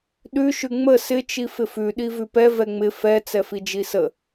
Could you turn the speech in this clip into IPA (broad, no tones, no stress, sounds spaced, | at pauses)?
ɗ ʉ ʃ ʉ ŋ͡m ə s ɪ t͡ʃ i f ɪ f ʉ ɗ i v ʉ p ɛ v ɛ ŋ͡m ɪ f ɛ t͡s ɛ f i d͡ʒ i s ə